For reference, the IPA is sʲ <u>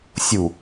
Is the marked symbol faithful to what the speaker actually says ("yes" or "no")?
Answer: yes